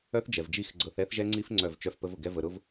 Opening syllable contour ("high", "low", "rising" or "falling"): high